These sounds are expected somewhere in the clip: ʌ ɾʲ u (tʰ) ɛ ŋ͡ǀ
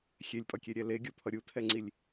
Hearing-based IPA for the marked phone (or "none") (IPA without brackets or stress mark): tʰ